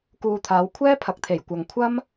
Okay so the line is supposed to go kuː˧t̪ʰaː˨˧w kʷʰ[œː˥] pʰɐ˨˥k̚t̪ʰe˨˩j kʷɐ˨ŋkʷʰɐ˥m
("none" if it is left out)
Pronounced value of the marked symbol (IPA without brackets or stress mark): ɛː˥